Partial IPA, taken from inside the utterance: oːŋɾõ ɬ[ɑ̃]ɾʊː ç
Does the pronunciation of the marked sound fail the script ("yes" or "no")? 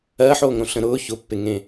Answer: yes